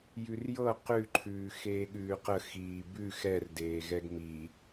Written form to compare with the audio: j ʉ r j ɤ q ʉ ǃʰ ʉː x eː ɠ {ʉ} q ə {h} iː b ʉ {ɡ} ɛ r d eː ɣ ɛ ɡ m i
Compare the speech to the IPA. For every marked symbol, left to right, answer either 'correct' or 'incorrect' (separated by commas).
incorrect, incorrect, incorrect